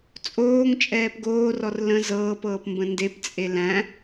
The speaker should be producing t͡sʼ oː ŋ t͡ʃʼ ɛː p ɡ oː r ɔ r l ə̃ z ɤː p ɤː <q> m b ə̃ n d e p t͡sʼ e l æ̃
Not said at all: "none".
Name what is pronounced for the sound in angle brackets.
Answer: p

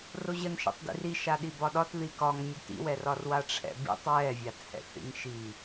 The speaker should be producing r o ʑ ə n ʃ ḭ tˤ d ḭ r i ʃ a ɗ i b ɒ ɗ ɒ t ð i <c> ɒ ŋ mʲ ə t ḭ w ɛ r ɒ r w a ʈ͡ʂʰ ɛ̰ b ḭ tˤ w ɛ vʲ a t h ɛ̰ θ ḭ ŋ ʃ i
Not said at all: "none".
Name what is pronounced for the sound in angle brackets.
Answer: k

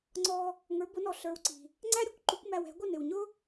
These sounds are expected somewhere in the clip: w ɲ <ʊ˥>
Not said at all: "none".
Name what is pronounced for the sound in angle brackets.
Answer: ʊ˥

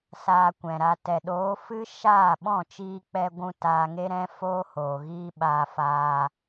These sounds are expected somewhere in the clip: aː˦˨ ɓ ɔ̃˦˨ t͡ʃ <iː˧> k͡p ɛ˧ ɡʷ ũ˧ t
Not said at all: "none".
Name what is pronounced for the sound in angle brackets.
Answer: iː˧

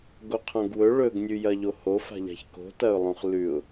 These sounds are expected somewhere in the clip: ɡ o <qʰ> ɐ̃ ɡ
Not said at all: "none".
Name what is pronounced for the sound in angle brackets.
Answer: qʰ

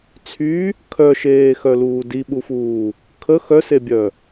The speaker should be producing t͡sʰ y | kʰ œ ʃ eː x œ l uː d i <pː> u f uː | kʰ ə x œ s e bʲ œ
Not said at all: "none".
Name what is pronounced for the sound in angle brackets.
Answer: ɓ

